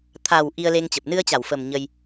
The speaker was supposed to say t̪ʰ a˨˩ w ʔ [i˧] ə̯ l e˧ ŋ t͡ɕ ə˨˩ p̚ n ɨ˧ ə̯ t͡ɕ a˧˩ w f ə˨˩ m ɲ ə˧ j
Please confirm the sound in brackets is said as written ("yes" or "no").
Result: yes